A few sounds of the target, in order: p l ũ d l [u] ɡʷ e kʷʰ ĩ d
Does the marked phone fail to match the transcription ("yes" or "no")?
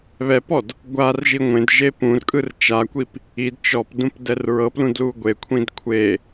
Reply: no